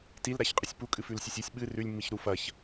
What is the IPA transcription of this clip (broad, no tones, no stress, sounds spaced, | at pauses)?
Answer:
t i l ɾ a ç qʼ ɨ sʲ p u kʼ ɨ f ʉ l sʲ ɵ sʲ i sʲ ɓ ɨ r ʉ lʲ mː i ç ɾ u f ɐ ç